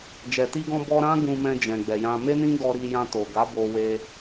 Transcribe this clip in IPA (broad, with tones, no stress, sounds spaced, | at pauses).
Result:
d͡ʒ ɛ˨ t i˧ ɡ ɔ̃˧ b ɔ˧ ɾ ã˦ ɡ ũ˧ m ɛ̃˧ d͡ʒ ɛ̃˨ ɡ͡b ɛ˨ j ã˧ m e˦ n ĩ˦ ɡ ɔ˧ ɾ i˧ j ã˧ t o˨ ɡ a˨˦ b o˧ w e˧